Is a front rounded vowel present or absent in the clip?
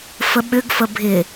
present